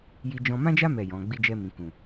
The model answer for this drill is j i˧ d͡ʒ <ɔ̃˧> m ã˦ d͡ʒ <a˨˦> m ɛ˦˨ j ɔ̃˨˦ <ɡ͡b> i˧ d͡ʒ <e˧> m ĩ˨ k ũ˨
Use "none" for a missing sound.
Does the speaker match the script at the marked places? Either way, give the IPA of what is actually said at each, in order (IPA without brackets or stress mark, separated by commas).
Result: ɔ̃˧, a˦, ɡ͡b, ɛ˧